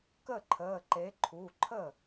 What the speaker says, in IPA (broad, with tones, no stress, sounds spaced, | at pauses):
k ə˥˩ ǃʰ əː˩˧˩ ǃ e˩˥ ǃʰ u˩˧˩ ǃʰ ə˥˩